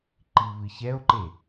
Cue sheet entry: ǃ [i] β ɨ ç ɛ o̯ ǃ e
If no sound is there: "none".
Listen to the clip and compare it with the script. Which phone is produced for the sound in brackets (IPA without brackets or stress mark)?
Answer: i